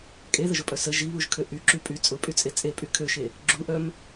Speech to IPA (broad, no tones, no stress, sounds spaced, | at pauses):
kʼ e ð ə ʒ ʊ pʼ œ s ə ʒ i β u ʒ kʰ ø ʔ y ǁ y pʼ y t͡sʼ ʊ pʼ y t͡sʼ e t͡sʼ e pʼ y kʰ ø ʃ e | ɡ͡ǁ u ʔ œ m